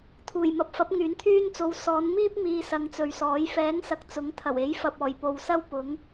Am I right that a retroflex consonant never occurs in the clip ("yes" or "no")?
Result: yes